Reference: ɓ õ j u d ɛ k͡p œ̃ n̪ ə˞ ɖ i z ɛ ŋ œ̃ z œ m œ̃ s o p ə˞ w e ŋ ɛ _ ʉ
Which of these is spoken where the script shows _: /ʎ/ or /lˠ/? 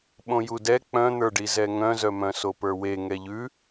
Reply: ʎ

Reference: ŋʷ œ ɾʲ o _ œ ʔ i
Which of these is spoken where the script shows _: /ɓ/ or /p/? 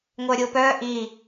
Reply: p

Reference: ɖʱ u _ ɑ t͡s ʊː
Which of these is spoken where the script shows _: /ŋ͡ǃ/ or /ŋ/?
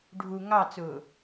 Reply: ŋ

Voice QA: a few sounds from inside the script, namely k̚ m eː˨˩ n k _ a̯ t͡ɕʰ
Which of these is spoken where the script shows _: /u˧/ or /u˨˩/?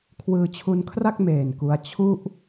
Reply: u˧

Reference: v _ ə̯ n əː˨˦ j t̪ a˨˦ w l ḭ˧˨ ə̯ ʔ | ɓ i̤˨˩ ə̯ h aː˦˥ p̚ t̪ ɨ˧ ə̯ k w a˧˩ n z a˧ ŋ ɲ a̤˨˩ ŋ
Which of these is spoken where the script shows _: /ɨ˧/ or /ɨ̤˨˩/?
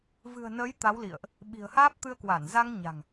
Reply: ɨ̤˨˩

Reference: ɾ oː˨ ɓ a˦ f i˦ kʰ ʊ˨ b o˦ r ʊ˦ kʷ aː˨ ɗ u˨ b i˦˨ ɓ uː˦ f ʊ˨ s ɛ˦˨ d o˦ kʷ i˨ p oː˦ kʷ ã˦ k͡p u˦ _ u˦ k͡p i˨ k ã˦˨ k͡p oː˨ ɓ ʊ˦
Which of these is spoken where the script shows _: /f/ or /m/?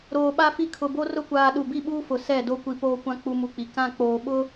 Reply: m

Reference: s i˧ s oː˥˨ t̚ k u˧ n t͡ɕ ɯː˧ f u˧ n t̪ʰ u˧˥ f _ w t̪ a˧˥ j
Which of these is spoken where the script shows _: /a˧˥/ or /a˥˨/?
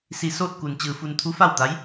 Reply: a˥˨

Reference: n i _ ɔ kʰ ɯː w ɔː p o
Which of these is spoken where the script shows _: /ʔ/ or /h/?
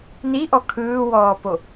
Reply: ʔ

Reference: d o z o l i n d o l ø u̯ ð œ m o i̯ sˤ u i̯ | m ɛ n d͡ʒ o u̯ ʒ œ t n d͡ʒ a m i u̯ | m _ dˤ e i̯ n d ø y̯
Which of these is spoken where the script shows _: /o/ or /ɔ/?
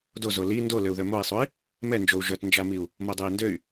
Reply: o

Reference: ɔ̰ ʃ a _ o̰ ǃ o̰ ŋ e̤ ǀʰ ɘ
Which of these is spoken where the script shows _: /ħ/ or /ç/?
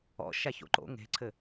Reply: ç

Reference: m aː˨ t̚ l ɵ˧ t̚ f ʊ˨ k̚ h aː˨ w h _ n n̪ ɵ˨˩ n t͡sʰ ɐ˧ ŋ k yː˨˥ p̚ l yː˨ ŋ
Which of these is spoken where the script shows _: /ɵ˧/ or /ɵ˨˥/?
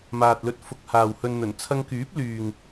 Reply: ɵ˧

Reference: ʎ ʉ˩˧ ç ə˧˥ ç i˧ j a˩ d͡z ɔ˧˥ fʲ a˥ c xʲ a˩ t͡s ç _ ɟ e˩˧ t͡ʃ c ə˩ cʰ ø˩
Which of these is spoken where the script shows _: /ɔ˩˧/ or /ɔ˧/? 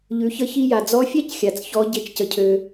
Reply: ɔ˩˧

